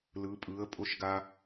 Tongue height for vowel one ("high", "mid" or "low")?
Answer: high